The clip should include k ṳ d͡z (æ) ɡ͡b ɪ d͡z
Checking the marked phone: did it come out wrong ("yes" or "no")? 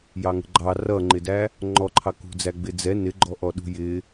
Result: no